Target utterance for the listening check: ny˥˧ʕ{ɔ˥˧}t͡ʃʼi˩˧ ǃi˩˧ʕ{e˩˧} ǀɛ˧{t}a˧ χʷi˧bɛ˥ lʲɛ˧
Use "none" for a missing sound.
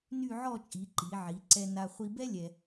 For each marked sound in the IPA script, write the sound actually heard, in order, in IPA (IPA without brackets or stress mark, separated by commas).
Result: ɔ˥˧, i˩˧, n